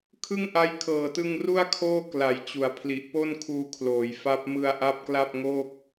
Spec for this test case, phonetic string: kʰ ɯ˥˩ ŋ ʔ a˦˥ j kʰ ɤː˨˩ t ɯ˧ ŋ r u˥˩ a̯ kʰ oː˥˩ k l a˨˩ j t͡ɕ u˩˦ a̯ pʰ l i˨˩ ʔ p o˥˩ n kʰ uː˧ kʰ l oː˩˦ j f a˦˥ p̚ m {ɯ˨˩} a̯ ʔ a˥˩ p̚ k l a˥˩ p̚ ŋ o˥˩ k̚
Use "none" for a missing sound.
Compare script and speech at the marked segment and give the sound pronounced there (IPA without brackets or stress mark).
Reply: ɯ˧